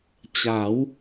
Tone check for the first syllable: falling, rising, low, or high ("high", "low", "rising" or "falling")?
rising